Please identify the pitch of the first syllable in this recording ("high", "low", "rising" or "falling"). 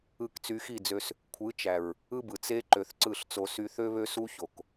falling